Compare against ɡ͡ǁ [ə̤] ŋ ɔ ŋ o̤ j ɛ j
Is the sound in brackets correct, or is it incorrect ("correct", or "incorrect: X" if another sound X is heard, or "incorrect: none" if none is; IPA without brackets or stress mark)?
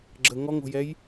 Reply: incorrect: ə